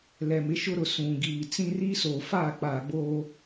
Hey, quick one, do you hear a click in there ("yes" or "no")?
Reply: no